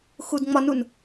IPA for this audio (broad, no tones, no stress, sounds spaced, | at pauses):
x u d ŋ͡m ɒ n u n